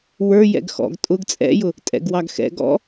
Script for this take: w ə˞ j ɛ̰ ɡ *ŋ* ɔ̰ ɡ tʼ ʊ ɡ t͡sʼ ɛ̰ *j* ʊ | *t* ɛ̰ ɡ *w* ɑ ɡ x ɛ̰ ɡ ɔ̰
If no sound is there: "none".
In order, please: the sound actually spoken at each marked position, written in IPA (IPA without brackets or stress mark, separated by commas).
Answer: x, j, tʼ, w